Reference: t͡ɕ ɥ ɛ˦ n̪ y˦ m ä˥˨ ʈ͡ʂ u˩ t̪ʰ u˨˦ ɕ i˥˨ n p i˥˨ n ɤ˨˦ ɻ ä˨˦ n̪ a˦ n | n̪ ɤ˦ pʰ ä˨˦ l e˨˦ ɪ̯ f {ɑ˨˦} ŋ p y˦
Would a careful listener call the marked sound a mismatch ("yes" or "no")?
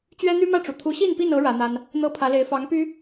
no